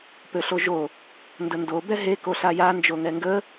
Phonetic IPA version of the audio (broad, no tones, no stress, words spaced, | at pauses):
pøɬoʒo | ndəndo bɛɦe koɬaja nd͡ʒoŋɛŋɡə